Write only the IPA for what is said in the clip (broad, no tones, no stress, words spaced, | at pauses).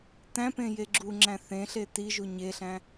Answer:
tæ̃pẽ jeɡ͡ǁuŋ͡ǁæ̃ θẽɬe tiʒu ɲeɬæ̃